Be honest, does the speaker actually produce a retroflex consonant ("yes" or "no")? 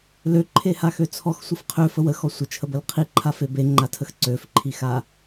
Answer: no